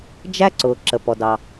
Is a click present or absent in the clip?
present